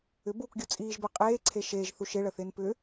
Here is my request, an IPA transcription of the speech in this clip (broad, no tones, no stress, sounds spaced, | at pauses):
ʏ b uː k ɡʲ u t͡sʼ iː ʒ b əː qʼ eː ǀʰ e ʃ eː ʒ θ u ʃ ɪ ɭ ə θ ɪː n p ʏ